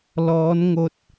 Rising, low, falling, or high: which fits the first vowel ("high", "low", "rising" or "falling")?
rising